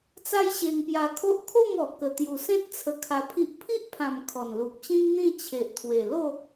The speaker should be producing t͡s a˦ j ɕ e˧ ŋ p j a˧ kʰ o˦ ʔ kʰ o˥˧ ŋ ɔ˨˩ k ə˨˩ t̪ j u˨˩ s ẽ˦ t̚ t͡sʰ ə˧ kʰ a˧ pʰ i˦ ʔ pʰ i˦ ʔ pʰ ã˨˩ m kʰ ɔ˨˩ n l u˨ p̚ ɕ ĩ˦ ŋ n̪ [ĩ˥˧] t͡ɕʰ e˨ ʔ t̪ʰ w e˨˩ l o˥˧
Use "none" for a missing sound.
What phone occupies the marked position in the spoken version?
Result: ĩ˥˧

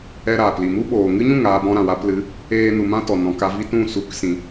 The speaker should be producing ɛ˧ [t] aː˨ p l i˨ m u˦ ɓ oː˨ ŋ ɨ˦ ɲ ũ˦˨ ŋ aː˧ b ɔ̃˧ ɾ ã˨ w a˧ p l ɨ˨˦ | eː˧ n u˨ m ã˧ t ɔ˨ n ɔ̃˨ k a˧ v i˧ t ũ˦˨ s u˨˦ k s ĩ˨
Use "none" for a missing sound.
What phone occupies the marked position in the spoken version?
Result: ɾ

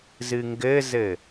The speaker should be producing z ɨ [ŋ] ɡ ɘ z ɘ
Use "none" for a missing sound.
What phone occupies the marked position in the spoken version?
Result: ŋ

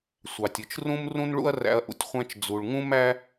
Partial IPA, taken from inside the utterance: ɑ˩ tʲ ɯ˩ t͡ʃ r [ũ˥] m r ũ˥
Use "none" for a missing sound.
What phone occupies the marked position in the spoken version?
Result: ũ˥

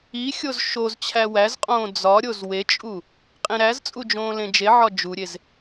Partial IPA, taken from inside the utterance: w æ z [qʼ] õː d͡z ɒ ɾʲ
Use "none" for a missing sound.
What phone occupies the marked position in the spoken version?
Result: qʼ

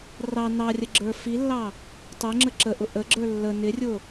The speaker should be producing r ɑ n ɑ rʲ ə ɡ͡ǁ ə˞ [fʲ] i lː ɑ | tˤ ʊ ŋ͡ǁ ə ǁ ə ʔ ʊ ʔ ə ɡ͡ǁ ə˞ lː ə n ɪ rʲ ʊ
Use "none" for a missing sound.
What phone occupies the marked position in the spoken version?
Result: f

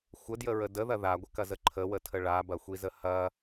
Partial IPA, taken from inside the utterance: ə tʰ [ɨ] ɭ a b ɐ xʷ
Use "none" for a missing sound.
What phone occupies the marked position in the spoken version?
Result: ə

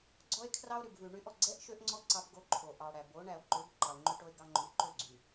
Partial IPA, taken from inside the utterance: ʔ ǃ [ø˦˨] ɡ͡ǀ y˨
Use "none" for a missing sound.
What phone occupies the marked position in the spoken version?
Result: ø˦˨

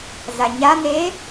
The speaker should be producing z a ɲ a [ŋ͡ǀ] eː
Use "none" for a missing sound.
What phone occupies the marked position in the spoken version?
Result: n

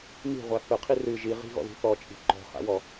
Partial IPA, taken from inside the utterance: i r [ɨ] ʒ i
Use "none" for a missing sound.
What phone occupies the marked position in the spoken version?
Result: ɨ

